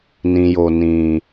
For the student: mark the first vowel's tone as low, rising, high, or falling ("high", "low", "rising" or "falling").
low